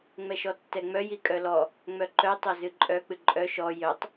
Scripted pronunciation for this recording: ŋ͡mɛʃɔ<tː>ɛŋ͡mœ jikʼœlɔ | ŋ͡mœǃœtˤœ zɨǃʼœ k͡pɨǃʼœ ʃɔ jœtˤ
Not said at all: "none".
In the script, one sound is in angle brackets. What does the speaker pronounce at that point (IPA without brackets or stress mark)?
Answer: tː